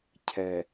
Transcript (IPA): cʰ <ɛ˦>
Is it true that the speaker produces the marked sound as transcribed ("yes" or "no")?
no